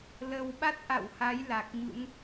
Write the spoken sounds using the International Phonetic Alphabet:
l ə˧ w ɓ a˦˥ t̚ ʔ a̰˧˨ w h a˨˦ j l a˨˩ k̚ ɲ ṵ˧˥ ŋ

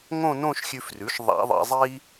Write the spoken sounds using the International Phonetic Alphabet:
ŋ õ˥˧ n õ˥˧ ʃ xʲ ʉ˧ f r ʉ˩˥ ʃ ðˤ a̰˧˥ ðˤ ḭ˧ zˤ i˥

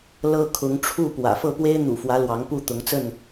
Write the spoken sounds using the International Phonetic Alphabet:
l ɤ˦ kʰ ʊ˨˦ ŋ ʈ͡ʂʰ u˥˨ p w ä̰˨˩ f ɤ˥˨ p w e˦ ɪ̯ n̪ ṵ˨˩ f w ä˨˦ l w ɑ˨˦ ŋ p u˥˨ t̪ ʊ˨˦ ŋ t͡s ə˥˨ n

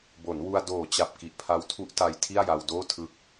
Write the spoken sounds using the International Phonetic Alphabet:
b o˩˦ n w u˧ a̯ d oː˨˩ t͡ɕ a˨˩ p̚ k i˨˩ ʔ pʰ a˧ w tʰ u˦˥ ʔ t a˧ j tʰ i˥˩ a̯ j a˧ w d oː˥˩ tʰ ɯ˦˥ k̚

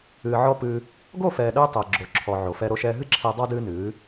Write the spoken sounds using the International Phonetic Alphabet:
ɨː˨ ʕ ɔ˧ p ɨ˧ | ɡ o˦˨ f ɛː˨ ɗ ɘː˧ tˤ ɘː˨ ɡ͡ǁ o˨ ǁʰ ɔ˨ ʕ o˨ f ɛ˧ ɾ o˧ ʃ ɛː˧ ɦ ɨ˦ ǁʰ ɘː˧ dˤ a˦ d ɨː˦ n ɨː˨˦

